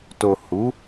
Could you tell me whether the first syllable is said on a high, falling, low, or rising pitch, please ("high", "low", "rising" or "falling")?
low